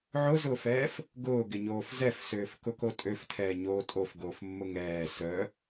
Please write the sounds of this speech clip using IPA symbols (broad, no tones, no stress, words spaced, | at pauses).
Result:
ʕʊzʊːfɛːf | ɡʊːɡɪɲoːf zɛfsøːf kʊkotʼøftʰɛː ɲoːtʼofɡoːfmːʊ ŋɛː sœ